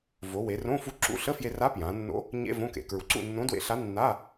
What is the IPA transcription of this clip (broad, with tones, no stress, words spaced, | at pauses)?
vo˩˧we˩˧rõ˧˥˧ fu˧ǁṵ˧˥˧ɬə˧˥˧fje˧ ra˧˥ pjã˩˧nːo̰˧˥ | ɲḛ˧˥˧ võ˧˥˧kḛ˩˧ kɹu˩˧ǀṵ˥˨nːõ˧˥ dwḛ˧˥ɬa˧˥nːa˧˥˧